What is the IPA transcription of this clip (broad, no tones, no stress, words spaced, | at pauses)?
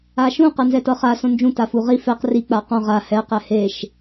aʃũ qɤnzɛtɤχa sõnd͡ʒũ tafuʁi fɛq ri k͡paqɔ̃ ʁa hɛ qɛheʃ